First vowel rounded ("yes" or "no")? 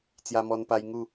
no